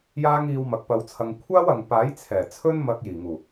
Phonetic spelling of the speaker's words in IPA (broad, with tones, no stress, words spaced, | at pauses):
jaː˥ŋiː˧wmɐ˨˥k̚ pɐ˧wt͡sʰɐ˧ŋ kʷʰaː˥wɐ˨ŋpaː˨˥j t͡sʰɛː˨˩t͡sʰɵ˥nmɐ˧k̚ jiː˨˩ŋuː˨˩